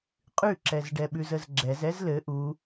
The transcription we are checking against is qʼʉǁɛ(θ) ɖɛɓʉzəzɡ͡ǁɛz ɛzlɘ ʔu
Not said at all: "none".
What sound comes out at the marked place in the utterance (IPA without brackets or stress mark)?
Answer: z